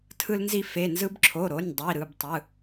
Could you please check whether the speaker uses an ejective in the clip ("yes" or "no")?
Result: no